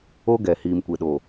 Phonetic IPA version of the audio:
o˦ ɡ ɛ˨ h iː˨ m kʷ e˨ ɗ o˨

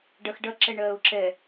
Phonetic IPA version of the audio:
ɖ ɐ x ɖ ɐ ǁ ɛ ɳ ɜː ʊ̯ ǁ ɛ

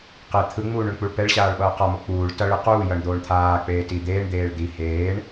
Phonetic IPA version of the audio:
q e t̪ʰ ɯ ŋ͡m uː ɳ o ɳ k͡p u ɭ p ɛ ɭ ɕ aː ɭ ɓ ʌː q a m o k͡p uː ɭ t ʌ ɭ ɯ q uː j ʌ ɳ d̪ oː ɳ t̪ʰ aː k͡p eː t i d̪ eː ɳ d̪ eː ɭ d̪ i h eː ɳ

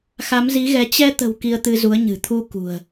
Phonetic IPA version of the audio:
x a˨˦ m z i˨˦ ɣ ɛ˨˦ t͡ɕ ɛ˧ t̪ ə̤˨˩ w k i˧ ə̯ t̪ ɨ˧ z u˨˦ ə̯ ɲ ɨ̤˨˩ t̪ʰ u˧ k ṳ˨˩ ə̯

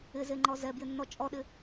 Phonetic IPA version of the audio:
ɪ z e ŋ͡ǃ ɔ z ɛ b j ɪ nː ɔ t͡ʃʼ ɔ ɗ ɪ

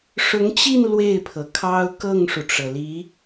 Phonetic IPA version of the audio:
ʂ ʊ˧˥ ŋ t͡ɕ i˥˧ n l w e˥˩ ɪ̯ pʰ ɤ˩ kʰ ɑ˥ ʊ̯ k ɤ˥˩ ŋ ʂ u˩ ʈ͡ʂ ɤ˩ l i˧˥

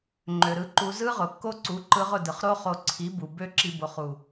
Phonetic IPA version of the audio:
ŋ͡ǃ ø˨ ɾ ɯ˧ ǃ u˧ z ɯ˦ ʁ ʊ˨ kː o˦ ǀ u˨˦ ǃ ɯ˧ ʁ ʊ˦˨ d ɯ˨ χ ɾ o˦ χ o˧ ǀʰ i˨˦ b u˨ b ø˦ ǁ i˧ b o˨ χ u˨

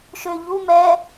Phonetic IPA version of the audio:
ʃ ø ʎ u m ɛ

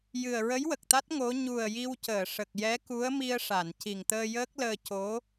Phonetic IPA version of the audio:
j ɨ˨˩ ə̯ ɹ ə˧˥ j w ə˨˩ k̚ t̪ a˦˥ t̚ ŋ o˧˥ ɲ u˨˩ ə̯ j i˧ w c əː˨˩˨ ʂ ə˨˩ k̚ j ɛ˧˥ k u˧˥ ə̯ m i˧ ə̯ ʂ a˨˩˨ n c i˨˩ ŋ t̪ əː˧ j əː˦˥ k̚ l əː˧ c o˧˥

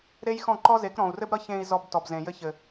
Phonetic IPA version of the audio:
ɾ e˦ j x ɔ̃˦˨ ǃ ɔ˦ z e˨˦ k ɾ ɔ̃˨ u̯ r ɘ˦ b ɾ ʌ˦ ç ẽ˧ i̯ z ɔ˧ b t ɔ˨ b z ẽ˨ j ɘ˧ ç ɘ˨

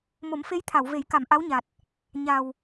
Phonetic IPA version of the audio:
m o˨˩˦ m f e˧˥ j t̪ʰ a˨˩˨ w v e˨˩˦ j k a˨˩˨ m ʔ a˧˥ w ɲ a˨˩ t̚ | ɲ a˨˩ w

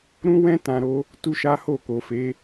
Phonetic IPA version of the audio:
ɾ ũ˦ w ɛ̃˦ t ã˧ ɾ o˦ | t u˦ ʃ a˦ h o˦˨ k o˨ f e˨˦

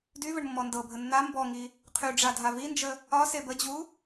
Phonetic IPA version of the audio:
d y v ə ɳ mː ɔ n d ɤ bʱ ə nː a m b ɔ ŋ i | qʰ y ɖ͡ʐ a dʱ a v i n d͡ʒ ə | ɒ s e b ə d͡ʑ u

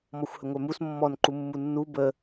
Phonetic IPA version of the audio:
m ɔ xʷ h ə ŋʷ œ m u s mː ɔ n ǃ u mː u nː u b ə

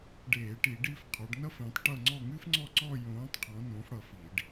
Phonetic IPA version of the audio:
ɖ eː˧˩˧ ʈ i˧˩˧ ɖ i˥˧ f qʰ ɔ˨˦ ɖ n ʌ˥ f ẽ˨˦ tˤ ʈ ʌ˥˧ ŋ͡ǀ ɔ˥˧ ŋ ɨ˥ f ŋ͡ǀ ɔ˥˧ ǀ ɔ˥˧ j õː˨˦ tˤ qʰ ɔ̃˨˦ n õ˨˦ f ɽ ʌ˧˩ f i˧˩˧ ɖ

